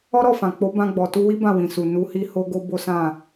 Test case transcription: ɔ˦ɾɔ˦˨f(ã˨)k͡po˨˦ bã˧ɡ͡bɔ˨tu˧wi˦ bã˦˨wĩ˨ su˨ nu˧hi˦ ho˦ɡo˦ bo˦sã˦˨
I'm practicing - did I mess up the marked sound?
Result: no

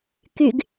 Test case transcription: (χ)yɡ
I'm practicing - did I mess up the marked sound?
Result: yes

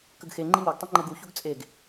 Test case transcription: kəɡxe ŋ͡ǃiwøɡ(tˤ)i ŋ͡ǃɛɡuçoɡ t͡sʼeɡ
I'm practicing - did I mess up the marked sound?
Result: no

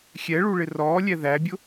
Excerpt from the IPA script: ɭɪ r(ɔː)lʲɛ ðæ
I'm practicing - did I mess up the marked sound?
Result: no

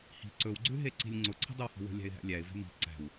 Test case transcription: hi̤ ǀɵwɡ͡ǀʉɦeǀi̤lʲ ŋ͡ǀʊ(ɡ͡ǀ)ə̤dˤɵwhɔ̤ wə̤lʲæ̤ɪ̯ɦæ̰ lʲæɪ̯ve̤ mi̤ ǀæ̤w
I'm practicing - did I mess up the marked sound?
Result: yes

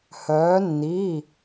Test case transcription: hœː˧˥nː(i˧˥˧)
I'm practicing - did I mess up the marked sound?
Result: no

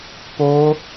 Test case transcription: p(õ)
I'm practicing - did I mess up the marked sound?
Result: yes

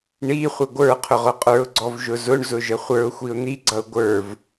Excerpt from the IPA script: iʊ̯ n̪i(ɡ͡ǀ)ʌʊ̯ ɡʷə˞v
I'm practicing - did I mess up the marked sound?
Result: no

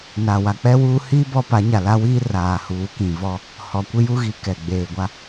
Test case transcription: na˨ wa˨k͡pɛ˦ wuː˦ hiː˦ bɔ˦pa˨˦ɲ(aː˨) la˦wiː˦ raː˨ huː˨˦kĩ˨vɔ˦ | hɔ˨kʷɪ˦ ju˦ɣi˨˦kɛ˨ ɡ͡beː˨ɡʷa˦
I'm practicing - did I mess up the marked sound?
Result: yes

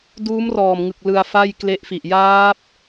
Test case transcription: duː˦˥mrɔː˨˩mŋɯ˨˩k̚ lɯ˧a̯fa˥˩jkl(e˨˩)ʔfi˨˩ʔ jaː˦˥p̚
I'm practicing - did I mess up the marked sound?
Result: yes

